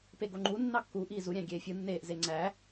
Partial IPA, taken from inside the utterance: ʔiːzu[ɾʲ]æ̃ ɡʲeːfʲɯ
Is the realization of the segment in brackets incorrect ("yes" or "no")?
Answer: no